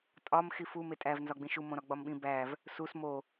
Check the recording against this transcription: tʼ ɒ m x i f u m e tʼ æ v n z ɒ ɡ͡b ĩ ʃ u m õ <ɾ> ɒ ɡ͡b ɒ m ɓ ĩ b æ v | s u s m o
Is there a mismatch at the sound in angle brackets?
no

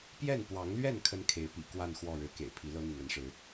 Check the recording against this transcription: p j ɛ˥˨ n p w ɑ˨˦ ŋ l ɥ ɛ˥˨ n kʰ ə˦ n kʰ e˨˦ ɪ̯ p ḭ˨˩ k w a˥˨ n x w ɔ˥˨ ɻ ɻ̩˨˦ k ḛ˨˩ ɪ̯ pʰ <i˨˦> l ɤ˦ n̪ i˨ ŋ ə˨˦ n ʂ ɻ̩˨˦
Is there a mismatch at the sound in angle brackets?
no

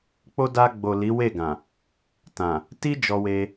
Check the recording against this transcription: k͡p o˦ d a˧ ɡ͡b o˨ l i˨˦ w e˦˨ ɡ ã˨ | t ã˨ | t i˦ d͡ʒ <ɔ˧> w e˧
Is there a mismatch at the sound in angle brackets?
no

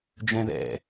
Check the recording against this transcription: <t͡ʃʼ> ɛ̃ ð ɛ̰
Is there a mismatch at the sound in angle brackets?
yes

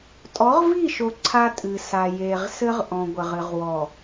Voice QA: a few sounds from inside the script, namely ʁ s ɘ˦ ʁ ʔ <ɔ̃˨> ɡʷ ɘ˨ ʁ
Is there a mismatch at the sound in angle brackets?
no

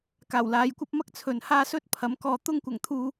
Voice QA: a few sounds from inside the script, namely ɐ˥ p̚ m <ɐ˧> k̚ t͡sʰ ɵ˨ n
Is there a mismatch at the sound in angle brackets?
yes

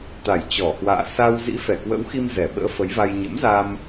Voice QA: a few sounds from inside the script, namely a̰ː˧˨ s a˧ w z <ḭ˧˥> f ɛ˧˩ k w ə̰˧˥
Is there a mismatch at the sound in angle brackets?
no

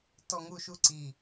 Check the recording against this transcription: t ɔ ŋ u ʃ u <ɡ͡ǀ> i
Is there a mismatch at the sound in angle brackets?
yes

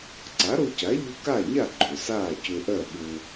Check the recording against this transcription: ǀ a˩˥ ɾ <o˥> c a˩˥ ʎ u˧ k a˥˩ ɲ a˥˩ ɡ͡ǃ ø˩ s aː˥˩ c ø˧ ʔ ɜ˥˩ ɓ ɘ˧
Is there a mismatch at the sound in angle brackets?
yes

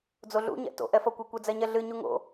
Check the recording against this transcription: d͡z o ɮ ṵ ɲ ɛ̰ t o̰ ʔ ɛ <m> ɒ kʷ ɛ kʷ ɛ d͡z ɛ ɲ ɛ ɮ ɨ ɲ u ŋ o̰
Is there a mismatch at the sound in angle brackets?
yes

